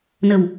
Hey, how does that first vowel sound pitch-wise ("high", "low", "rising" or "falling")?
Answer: low